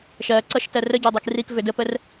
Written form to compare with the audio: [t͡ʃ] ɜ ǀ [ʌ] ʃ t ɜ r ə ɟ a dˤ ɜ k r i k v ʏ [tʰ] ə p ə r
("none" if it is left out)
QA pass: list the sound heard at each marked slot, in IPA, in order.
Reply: ʃ, ʌ, d

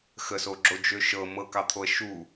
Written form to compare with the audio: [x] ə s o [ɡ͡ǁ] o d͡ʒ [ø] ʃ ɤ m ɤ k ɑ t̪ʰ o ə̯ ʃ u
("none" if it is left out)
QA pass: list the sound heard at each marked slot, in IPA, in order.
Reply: x, ɡ͡ǁ, ø

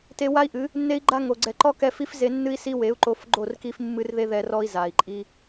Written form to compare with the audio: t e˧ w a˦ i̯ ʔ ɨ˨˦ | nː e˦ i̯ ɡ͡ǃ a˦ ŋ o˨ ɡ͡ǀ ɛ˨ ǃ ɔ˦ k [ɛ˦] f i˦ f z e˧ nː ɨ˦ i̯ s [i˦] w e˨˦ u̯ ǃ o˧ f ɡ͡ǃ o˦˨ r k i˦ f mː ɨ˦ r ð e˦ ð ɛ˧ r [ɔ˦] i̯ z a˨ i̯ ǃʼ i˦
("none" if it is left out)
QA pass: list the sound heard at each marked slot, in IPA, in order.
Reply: ɛ˧, i˦, ɔ˦

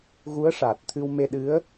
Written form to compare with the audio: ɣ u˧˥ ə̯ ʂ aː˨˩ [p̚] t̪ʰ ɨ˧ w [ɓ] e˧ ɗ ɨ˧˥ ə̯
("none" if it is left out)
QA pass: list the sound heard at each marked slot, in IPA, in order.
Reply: t̚, m

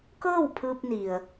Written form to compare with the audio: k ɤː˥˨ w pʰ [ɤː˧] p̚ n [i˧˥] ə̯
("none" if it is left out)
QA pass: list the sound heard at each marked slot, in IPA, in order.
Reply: ɯː˧, i˩

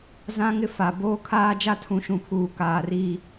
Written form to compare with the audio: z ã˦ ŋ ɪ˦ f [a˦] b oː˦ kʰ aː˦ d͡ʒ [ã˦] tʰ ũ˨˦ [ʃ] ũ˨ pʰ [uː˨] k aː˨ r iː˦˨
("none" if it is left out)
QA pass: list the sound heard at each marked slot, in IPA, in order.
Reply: a˨, a˦, ʃ, uː˨

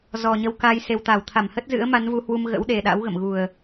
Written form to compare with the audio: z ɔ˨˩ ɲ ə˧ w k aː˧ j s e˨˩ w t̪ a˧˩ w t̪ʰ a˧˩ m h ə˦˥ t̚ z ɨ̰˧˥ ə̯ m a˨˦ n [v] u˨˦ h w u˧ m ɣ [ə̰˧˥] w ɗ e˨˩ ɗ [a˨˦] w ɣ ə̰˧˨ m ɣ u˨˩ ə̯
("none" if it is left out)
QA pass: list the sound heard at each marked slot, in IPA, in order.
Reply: v, ə̰˧˥, a̰˧˥

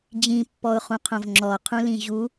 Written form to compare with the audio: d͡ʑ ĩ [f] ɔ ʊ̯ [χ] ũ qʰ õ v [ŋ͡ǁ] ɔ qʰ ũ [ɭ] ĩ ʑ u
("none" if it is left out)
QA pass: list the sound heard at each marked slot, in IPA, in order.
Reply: pː, χ, ŋ͡ǁ, l

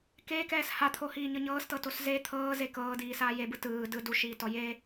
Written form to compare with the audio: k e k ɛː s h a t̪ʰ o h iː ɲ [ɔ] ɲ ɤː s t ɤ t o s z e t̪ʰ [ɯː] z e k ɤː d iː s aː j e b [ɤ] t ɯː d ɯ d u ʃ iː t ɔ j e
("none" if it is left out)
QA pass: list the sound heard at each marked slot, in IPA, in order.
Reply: ɤ, ɤː, ɯ

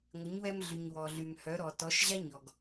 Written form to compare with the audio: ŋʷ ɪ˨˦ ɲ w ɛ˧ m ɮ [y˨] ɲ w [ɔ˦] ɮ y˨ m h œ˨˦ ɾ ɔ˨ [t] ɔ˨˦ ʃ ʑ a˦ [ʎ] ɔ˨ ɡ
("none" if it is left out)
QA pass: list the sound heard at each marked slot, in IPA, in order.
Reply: y˨, ɔ˨, t, ɲ

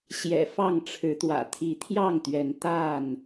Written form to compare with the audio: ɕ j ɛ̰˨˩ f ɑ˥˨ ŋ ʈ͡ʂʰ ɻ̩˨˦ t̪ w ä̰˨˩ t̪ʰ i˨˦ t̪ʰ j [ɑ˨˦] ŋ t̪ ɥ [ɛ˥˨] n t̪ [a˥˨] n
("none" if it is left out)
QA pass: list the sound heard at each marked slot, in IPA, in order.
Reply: ɑ˥˨, ɛ˨˦, a˥˨

